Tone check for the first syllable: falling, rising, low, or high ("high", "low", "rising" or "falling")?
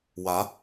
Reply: rising